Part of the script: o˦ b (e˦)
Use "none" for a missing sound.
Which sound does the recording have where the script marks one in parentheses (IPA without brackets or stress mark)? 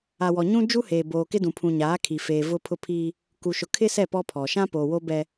ɛ˦